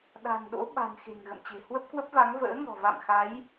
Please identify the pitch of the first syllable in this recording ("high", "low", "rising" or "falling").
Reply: low